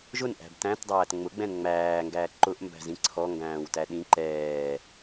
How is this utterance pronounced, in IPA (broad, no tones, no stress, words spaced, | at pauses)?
ʒʊnʔæ̤b tæ̃tdˤæːt ŋ͡mʊɡ͡bɛ̃n ŋ͡mæːŋɡæː ǃʊʔmbæ̤zĩ ǀʰɔŋɡæ̃ːwtæ ɗĩ ǃɛː